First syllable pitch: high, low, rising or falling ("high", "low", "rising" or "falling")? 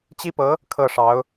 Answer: high